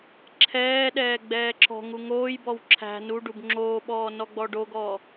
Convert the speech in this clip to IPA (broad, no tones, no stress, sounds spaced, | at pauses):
ǁʰ ɛː ɗ ɛː ɡ͡b ɛː ǁ ɔ̤ ŋ u ŋ oː j b ɔ w ǁʰ æ̤ n u ɖ u b ŋ͡ǁ oː ɓ ɔː n ɔ ɡ͡b ɔ ɖ o ɡ ɔː